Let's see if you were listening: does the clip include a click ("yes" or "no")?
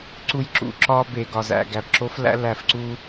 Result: yes